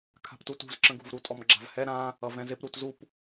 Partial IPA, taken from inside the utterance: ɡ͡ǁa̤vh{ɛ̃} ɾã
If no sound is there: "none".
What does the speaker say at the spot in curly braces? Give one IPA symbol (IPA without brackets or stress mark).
ɛ